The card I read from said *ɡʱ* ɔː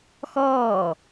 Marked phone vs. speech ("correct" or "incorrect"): incorrect